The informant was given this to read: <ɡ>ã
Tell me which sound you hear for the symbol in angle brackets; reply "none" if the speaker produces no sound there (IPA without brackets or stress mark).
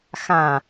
x